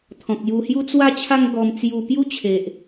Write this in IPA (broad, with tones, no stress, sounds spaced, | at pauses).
t̪ʰ ɔ̃˨ k̚ j u˧ h j u˦ t͡s w a˦ t͡ɕʰ a˦ ŋ ɡ ɔ˧ m t͡s j u˧ p j u˦ t͡ɕʰ e˨ ʔ